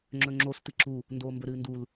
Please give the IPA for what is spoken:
ŋ͡ǁ ɵ ŋ͡ǁ o s t ɨ ǁ u | n d oː m b ɵ ɾ ɨː n d u l

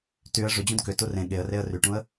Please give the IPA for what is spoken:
t y ə̯ ʐ ʏ d͡ʑ ũ d k ʏ t u r ẽ ɠ e ə̯ r e ə̯ r y ʈ ũ ə̯

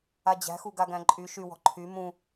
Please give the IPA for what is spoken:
a d͡ʑ æ̤ x u ɡ a ɡ æ̃ ǃʼ y ʃ y w ɔ̤ ǃʰ y m ũ

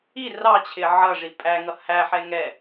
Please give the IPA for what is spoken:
i r ɑ t͡ɕʰ ɪ ʕ ʌ ʐ i pʼ æ ŋ ʌ h æ ħ ɛ ŋ ɛ

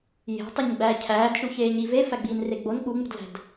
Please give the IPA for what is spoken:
j e̤ tˤ i ɲ ɡ͡b æː cʰ æː d ʃ u ç eː ɲ i v e f æ ɡ͡b iː n r e ɡ͡b o n ɠ u ŋ͡m ṳ d l æ̤ d

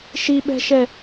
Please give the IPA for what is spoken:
ʃ i ɓ ɛ̤ ʃ ɛ

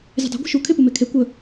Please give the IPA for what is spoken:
zʲ ə̤ dˤ e̤ ɡʷ e̤ ʃ u kʰ e p u m e kʰ e kʷ ə

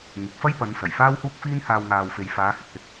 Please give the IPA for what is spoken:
ŋ ɪ˨˥ k̚ f ɐ˥ j p ɐ˨˧ n s ɐ˨˩ j f aː˥ w h uː˥ k̚ f iː˥ n h aː˧ w ŋ aː˨ w f e˨ j f aː˨˧ h ɪ˨ k̚ h ɪ˧ k̚

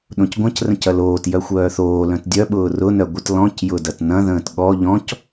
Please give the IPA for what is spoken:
ɗ õ c ɡʷ ɐ̃ c r ə̃ c ɐ l oː t j œ xʷ œː θ oː l œ̃ t dʲ œ ɓ ʊː r ʊ n œ ɡʷ ə t l ɔ̃ c j ʊ d ɐ t n ɐ̃ ð ə̃ː t ɠ ɔ ʎ ɔ̃ c

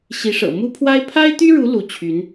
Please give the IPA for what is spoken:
ɕ i˧˥ ʂ ɤ̰˨˩ m u˥ pʰ w a˥ ɪ̯ pʰ a˥ ɪ̯ t̪ y˥ ɻ u˧˥ l u˧˥ t͡ɕʰ y˧˥ n

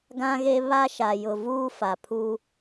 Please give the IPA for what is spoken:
ɡ ã˦ ɣ e˦ β a˦ ʃ a˨ j ʊ˨ v uː˦ f a˨ pʰ u˦

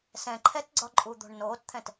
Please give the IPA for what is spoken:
s ɛ̃ ǃʰ ɛ t ɡ͡ǀ ɒ ǃʼ u d̪ o̤ ɳ n oː t t̪ʰ ɛ̃ t

